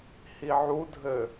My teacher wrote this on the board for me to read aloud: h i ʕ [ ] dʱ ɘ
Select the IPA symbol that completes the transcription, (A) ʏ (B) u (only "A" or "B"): B